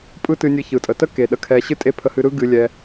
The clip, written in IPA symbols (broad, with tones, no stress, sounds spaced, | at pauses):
pʼ ɯ˥ t ɨ˧ nʲ ɨ˧ ç ɯ˩ tʼ ə˩ t ə˥ k e˩ ɗ ə˧ kʰ ɛ˧ ɕ ɨ˥ tʼ e˥ pʰ ə˧ h ɨ˧ ɾ ɯ˥ ɡ ɨ˧ lʲ ɛ˧